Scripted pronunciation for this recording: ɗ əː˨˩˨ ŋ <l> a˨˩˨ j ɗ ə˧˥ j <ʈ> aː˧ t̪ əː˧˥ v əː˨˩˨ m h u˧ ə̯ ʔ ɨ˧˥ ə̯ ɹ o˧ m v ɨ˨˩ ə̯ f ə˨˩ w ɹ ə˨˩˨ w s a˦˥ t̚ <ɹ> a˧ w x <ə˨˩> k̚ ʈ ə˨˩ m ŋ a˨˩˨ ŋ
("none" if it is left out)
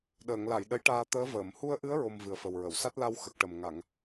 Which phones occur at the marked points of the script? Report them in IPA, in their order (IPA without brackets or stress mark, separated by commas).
l, ʈ, l, ə˨˩